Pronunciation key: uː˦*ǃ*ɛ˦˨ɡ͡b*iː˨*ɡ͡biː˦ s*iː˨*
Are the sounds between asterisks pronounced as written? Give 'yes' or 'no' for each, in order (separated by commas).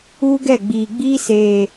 no, yes, no